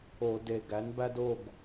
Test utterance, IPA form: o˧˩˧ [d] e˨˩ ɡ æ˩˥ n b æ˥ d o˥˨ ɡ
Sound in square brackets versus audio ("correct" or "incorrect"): correct